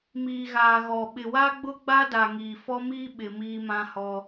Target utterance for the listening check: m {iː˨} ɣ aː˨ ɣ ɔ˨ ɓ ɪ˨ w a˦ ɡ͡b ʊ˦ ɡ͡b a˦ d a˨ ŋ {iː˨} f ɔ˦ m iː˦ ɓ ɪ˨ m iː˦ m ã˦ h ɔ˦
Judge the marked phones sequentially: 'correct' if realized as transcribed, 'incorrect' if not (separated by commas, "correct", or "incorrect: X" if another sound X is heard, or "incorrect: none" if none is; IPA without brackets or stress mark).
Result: correct, correct